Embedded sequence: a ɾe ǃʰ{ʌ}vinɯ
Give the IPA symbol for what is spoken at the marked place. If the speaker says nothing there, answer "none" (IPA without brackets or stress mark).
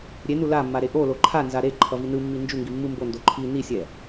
ʌ